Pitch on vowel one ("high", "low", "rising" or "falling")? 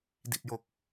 low